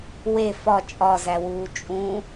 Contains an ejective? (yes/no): yes